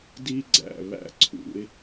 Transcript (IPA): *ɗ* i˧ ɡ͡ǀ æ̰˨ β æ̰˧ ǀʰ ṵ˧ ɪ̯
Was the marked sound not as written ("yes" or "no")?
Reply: yes